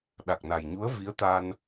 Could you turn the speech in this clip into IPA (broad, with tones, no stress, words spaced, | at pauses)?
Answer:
ɗa˨˩k̚na˨˩jɲu˧˥ə̯ vi˧˥ə̯t̪a˧n